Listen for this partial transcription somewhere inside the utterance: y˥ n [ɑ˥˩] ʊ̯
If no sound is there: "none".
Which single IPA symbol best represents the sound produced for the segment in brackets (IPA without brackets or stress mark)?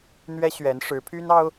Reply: ɑ˥